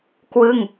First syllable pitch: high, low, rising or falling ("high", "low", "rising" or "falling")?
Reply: falling